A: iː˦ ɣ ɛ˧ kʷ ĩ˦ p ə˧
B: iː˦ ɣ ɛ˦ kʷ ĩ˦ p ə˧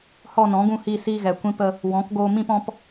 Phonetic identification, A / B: A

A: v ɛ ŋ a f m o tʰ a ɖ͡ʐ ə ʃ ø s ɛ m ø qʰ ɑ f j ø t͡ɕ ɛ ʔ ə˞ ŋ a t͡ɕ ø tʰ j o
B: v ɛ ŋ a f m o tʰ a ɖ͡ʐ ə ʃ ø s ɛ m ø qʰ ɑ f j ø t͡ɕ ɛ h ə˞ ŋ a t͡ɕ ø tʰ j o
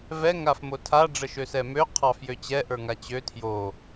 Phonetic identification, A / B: A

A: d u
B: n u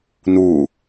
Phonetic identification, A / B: B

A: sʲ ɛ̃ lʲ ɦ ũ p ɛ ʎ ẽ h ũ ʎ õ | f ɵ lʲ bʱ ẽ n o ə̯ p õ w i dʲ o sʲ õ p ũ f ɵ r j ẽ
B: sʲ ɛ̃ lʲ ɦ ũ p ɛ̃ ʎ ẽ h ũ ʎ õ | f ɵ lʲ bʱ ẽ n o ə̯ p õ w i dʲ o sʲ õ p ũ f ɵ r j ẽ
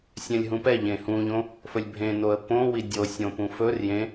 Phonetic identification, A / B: A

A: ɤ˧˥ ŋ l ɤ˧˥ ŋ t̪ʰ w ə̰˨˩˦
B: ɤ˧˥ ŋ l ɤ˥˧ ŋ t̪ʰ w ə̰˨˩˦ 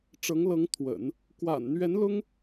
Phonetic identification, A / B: A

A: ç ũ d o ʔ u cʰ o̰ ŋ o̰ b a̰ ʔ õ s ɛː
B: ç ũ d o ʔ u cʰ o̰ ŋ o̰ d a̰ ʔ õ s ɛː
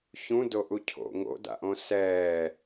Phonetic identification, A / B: B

